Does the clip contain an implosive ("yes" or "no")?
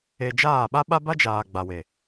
yes